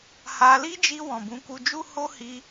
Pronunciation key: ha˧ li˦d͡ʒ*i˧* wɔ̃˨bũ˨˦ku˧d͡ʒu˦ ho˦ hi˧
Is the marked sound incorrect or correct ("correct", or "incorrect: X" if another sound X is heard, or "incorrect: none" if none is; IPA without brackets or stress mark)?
correct